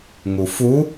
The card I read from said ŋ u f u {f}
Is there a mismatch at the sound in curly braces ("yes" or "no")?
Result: yes